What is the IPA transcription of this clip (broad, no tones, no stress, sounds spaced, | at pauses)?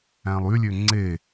æ̃ lˠ y lʲ ø ŋ͡ǀ e